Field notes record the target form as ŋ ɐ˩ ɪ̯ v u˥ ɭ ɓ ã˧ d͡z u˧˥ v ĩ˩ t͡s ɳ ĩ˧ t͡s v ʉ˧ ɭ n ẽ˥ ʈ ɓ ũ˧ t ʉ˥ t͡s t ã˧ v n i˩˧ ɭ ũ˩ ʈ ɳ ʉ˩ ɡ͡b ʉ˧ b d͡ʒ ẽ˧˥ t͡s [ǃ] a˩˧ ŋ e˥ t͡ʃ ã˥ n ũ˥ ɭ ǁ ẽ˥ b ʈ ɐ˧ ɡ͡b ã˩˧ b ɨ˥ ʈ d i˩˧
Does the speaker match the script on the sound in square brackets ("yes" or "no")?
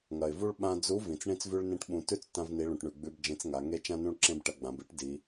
no